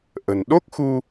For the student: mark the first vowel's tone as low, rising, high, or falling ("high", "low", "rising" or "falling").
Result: low